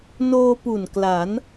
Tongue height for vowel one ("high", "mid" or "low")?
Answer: mid